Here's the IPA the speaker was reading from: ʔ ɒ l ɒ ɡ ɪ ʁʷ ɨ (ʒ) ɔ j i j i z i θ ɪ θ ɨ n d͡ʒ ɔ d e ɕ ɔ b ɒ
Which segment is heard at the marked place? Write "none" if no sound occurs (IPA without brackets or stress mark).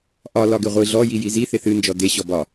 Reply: ɮ